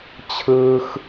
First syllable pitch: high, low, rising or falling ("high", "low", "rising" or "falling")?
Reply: high